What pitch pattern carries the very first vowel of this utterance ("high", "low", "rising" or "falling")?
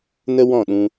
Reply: high